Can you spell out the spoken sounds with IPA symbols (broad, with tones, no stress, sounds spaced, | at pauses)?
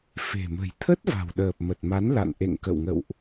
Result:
f e̤˨˩ m ə̤˨˩ j t̪ʰ ə˦˥ t̚ v a̤˨˩ w ɗ əː˨˩ p̚ m ə˨˩ t̚ m a˨˦ n l a̰˧˨ n ʔ ḛ˧˨ ŋ k ə̰˧˨ w ŋ ə̰˧˨ w ʔ